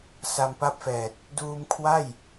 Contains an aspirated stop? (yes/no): yes